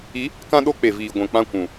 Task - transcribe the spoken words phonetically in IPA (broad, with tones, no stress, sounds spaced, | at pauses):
i˨˦ | k ã˦ ɗ o˦ k͡p e˨ v iː˨ ɡʷ ɛ̃˨ k͡p ã˧ kʷ ũ˨